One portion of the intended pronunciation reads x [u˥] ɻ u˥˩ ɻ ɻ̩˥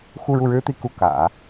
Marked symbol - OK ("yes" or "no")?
no